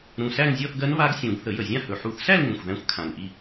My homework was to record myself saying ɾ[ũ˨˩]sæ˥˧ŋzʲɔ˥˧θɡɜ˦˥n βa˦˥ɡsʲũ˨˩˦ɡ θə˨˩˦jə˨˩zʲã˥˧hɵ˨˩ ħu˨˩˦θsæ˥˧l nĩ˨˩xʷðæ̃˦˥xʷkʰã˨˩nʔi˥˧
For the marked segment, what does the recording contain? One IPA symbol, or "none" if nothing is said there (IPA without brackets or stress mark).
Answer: ũ˨˩